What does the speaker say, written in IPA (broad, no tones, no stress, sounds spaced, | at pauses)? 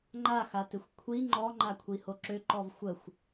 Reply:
ŋ͡ǃ a x a t ɪ xʷ kʷʰ i ŋ͡ǃ ɔ ŋ͡ǃ a kʷʰ i h o ǁ ø ǃ ɔ v xʷ ə xʷ